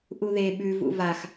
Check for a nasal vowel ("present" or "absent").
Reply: absent